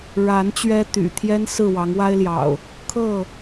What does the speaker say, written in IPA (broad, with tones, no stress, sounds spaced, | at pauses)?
ɻ a˨˦ n t͡ɕ ɥ ɛ˦ t̪ y̰˨˩ t̪ʰ j ɛ˦ n s ɹ̩˥˨ w ɑ˨˦ ŋ w a˦ ɪ̯ l j ɑ̰˨˩ ʊ̯ | kʰ ɤ˥˨